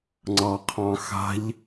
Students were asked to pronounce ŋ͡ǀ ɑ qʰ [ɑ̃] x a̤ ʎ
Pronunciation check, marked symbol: correct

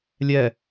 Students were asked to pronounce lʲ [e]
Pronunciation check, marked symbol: incorrect: ɛ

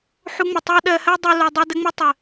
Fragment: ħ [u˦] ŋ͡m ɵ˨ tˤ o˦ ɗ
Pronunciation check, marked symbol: incorrect: u˧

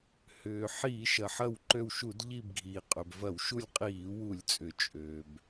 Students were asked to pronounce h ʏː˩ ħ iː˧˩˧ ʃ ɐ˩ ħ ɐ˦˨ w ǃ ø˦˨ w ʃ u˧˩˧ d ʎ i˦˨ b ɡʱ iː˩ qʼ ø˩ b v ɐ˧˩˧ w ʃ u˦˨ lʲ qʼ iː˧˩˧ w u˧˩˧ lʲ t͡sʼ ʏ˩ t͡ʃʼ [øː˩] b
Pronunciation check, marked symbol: correct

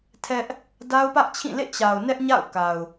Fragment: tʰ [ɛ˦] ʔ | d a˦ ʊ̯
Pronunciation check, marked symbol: correct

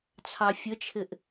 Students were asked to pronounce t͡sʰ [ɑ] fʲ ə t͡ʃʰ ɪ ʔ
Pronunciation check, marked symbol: correct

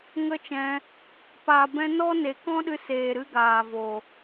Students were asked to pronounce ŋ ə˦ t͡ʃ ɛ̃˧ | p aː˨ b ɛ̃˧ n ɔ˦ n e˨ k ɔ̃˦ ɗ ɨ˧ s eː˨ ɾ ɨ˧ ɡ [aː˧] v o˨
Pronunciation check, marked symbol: incorrect: aː˨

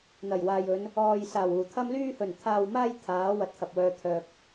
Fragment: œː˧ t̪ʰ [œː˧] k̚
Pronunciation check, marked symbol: correct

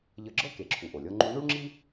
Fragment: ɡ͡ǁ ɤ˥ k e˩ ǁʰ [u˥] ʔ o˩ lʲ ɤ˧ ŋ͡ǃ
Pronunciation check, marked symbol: incorrect: u˩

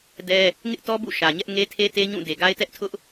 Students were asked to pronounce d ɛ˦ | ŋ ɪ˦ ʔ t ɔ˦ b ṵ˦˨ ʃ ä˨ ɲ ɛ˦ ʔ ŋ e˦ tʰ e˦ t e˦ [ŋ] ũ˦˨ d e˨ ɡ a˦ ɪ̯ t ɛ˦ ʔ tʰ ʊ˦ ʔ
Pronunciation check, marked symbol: incorrect: ɲ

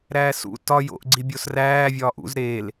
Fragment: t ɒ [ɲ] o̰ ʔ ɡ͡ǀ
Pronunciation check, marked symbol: incorrect: j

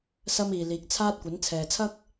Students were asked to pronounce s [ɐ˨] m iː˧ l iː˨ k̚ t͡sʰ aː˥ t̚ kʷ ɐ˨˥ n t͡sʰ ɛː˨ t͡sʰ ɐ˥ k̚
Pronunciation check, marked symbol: incorrect: ɐ˥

